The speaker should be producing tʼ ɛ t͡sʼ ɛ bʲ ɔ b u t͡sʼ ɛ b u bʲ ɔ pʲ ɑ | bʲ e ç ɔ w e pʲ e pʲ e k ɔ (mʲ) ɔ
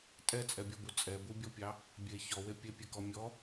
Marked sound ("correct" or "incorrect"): correct